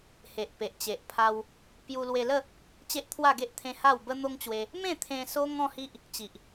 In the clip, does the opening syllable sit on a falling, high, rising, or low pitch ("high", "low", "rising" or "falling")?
low